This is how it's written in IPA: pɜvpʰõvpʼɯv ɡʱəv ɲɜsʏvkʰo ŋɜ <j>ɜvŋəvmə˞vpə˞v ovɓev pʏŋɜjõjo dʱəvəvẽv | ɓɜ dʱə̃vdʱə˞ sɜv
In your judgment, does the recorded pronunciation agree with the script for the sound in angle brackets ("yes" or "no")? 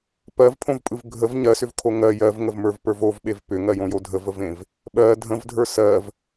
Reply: yes